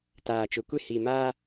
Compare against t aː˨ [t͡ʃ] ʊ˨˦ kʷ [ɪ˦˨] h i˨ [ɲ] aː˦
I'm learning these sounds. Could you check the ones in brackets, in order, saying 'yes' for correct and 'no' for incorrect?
yes, yes, no

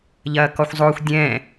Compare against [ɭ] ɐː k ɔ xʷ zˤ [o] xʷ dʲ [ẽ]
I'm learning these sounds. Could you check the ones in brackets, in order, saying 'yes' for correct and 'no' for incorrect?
no, yes, no

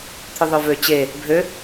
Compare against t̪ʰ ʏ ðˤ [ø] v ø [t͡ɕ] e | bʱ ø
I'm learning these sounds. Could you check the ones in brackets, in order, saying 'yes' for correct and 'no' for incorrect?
yes, yes

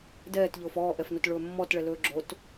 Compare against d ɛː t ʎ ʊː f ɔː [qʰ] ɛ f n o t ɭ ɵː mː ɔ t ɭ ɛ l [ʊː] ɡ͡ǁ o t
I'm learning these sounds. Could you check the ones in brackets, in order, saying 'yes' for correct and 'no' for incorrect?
no, no

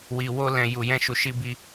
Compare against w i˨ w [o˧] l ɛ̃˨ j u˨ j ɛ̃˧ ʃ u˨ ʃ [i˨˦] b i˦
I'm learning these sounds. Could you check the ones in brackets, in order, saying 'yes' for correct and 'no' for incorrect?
yes, no

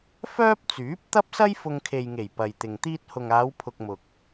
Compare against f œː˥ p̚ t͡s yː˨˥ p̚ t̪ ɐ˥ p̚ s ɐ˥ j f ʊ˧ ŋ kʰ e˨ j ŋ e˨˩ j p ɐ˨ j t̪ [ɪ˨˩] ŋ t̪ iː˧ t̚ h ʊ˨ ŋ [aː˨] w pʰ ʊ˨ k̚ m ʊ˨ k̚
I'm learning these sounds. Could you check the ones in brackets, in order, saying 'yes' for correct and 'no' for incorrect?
no, no

